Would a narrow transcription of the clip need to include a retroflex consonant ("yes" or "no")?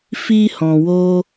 no